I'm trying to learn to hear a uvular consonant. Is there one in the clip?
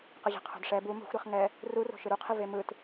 yes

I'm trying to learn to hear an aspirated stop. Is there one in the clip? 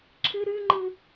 yes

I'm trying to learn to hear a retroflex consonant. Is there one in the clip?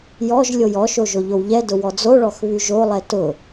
yes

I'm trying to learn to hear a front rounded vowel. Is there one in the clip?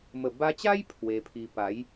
no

